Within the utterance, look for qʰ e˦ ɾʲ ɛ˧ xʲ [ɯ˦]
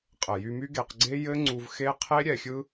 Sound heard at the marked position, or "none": ɯ˦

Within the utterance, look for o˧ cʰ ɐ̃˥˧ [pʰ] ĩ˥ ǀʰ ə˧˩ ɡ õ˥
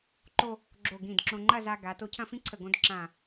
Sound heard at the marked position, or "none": f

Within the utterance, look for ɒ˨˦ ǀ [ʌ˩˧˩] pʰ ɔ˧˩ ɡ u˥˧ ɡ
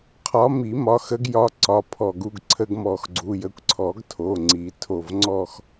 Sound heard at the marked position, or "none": ɒ˩˧˩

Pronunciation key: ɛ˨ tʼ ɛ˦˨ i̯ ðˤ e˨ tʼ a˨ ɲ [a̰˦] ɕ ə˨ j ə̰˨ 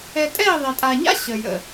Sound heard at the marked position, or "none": a̰˦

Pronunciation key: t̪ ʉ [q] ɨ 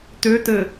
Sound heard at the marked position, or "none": t̪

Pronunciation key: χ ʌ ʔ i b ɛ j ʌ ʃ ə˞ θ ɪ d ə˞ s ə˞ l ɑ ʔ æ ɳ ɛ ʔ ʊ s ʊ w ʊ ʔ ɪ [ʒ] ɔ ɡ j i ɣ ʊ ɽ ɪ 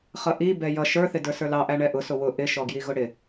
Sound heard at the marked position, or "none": ʃ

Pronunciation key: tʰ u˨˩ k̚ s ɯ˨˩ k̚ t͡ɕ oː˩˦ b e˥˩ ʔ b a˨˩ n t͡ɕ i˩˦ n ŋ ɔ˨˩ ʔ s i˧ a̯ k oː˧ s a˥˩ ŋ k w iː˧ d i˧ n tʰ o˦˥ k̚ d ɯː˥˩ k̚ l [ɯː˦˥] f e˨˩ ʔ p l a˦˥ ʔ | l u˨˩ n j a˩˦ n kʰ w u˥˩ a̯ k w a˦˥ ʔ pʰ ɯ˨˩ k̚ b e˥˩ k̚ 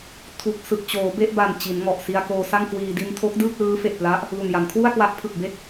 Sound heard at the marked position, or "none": ɯː˦˥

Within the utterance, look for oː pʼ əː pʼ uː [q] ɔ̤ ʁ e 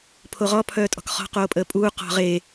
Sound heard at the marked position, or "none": q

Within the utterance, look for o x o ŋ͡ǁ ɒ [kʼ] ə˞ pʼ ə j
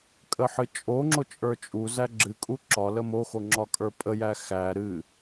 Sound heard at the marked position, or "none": kʼ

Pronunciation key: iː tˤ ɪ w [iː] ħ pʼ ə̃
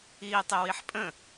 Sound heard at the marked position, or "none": i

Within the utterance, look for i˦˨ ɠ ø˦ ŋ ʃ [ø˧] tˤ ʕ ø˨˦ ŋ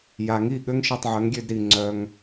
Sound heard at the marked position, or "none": e˧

